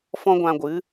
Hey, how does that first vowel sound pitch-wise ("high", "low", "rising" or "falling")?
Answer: high